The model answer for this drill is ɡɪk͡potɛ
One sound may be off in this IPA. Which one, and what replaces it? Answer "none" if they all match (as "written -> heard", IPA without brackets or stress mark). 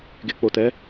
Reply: none